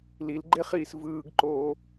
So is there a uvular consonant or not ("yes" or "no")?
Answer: yes